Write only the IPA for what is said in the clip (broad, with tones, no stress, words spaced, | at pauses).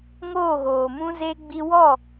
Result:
ŋoː˦˨ɣoː˨mũ˦ze˦ ɡ͡bi˧wɔ˦˨